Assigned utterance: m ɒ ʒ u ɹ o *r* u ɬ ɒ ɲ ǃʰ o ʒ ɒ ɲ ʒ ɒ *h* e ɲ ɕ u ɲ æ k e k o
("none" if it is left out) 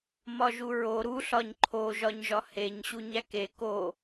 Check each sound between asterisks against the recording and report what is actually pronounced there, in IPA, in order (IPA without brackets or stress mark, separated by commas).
ɾ, h